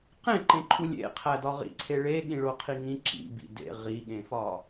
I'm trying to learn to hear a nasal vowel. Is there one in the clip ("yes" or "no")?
yes